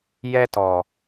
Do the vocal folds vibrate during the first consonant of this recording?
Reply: yes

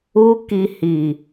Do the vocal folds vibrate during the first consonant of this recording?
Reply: no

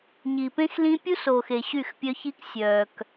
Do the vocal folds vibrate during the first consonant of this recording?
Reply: yes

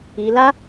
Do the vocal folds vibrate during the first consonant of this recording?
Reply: yes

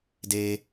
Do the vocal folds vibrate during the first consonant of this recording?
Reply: yes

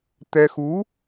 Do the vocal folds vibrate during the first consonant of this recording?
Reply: no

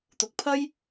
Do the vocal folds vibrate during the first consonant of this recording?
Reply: no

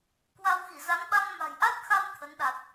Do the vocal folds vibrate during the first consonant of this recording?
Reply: no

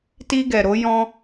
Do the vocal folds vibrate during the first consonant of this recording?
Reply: no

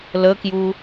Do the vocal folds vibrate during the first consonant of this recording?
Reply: yes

